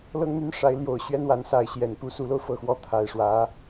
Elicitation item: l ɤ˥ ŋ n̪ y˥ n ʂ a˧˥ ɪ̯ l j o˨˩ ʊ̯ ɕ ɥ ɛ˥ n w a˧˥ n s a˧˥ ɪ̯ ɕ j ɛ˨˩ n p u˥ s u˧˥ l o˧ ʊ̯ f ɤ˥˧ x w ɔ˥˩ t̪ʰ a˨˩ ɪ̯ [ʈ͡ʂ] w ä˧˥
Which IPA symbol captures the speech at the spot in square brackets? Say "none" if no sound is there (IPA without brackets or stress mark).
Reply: ʂ